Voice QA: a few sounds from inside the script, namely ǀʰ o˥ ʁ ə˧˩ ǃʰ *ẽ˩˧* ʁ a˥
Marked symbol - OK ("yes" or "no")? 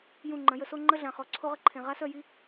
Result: no